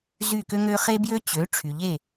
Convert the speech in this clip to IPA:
zy˥˩ kø˥ŋø˥ χe˥bjø˥t͡ɕø˩˥ ʈ͡ʂʰy˩ʎe˥˩

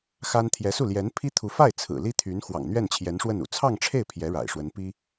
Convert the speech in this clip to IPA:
xa˥n t̪ʰjɛ˧˥su˥˩ ljɛ˧˥npʰi˥t̪ʰu˧˥ fa˥˩ɪ̯ t͡sʰɹ̩˨˩li˥t̪ʰy˧˥n xwɑ̰˨˩ŋn̪ɥɛ˥˩n t͡ɕʰjɛ˧˥nʂwə˥˩nṵ˨˩ t͡sʰɑ˥˧ŋʈ͡ʂʰe˥˩ɪ̯ pʰjɛ˧˥ ɻa̰˨˩ɪ̯ʂwə˧˥n pi˥

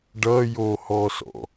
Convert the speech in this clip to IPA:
ɖʌjohɔsɔ̰

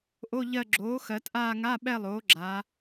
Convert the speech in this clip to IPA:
ʔo˧˥˧ʎɜ˦˨ ɡ͡ǁoː˩˥ xɜ˩˧t ʔaː˦˨ŋa˧˥˧ɓɛ˦˨ lˠoː˩˥ɡ͡ǁaː˩˧

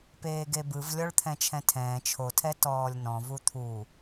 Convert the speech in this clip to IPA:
peːɡebɯv lʲɔɭt̪ʰɛ̃t͡ʃʰɛ̃tʰɛ̃ː t͡ʃʰotʰɛ tɔːlʲnɔ̃vu t̪ʰu

